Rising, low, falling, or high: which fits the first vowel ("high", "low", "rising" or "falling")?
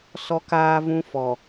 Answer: high